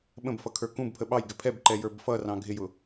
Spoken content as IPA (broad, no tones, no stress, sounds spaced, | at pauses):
ɓ ə̃ b f ʌ kʰ ə˞ k ũ b pʰ ə ɓ ɑ j ɡ ɪ pʰ ɛ b ǃ ɛ j ə˞ b f ʌ r ɑ̃ ɡʱ ɪ j ʊ